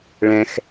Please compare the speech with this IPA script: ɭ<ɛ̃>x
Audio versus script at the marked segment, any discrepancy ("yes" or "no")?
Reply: no